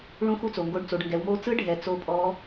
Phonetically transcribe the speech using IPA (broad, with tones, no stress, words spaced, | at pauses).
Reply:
ɭũ˧˥xu˧t͡so˩ŋɡo˧ɖ t͡so˩˧ɖŋɡɛ˩˧wmo˧˥ t͡sɯ˧˥ɖʱɛ˩˧ t͡so˧˥pʼɔ˧˥